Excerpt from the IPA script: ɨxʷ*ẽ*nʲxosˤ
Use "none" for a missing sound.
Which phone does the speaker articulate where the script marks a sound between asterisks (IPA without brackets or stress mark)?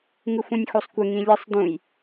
ĩ